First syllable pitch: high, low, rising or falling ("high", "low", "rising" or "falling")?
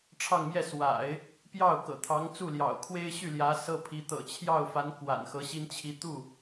falling